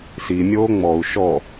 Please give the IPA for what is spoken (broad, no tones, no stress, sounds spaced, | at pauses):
s i mʲ oː ŋ͡m ɔ u̯ ʃ ɔ